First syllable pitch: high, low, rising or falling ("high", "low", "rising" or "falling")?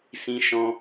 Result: high